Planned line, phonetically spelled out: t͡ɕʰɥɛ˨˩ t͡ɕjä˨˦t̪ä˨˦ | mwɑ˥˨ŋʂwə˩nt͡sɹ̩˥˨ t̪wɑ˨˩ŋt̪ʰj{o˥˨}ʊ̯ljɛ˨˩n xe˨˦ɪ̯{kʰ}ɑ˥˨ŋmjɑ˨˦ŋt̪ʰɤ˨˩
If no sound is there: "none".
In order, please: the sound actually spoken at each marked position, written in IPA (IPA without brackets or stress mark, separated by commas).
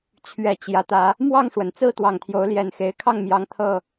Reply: o˨˦, kʰ